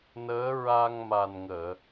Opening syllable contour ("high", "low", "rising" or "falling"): rising